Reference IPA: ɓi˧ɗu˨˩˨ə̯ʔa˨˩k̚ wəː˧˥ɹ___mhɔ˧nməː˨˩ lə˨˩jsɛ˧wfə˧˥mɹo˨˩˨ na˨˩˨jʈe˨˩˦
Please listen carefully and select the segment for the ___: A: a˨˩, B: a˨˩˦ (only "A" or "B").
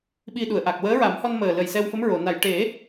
B